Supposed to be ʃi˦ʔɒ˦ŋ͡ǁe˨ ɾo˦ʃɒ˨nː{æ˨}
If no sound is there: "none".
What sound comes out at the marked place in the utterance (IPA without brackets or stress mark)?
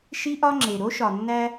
æ˦